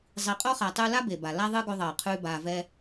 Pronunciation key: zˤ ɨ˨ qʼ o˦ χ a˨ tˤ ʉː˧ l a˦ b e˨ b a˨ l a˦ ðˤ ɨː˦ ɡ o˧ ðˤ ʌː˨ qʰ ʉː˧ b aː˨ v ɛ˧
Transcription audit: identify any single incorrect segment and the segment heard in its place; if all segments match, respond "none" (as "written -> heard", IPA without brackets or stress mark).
ɨ˨ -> i˨